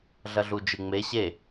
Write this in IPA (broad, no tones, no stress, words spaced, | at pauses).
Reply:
ɮɐɮud͡ʒɨŋ͡me ɕe